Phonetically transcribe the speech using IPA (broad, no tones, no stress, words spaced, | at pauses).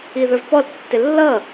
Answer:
iðə˞vpɔl tːɪlːʌ